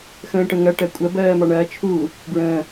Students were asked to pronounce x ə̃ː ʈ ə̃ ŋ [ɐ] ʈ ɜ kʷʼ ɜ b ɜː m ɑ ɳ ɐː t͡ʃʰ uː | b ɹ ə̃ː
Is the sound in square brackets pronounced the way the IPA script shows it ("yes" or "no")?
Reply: yes